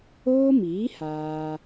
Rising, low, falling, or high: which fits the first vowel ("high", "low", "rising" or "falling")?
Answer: high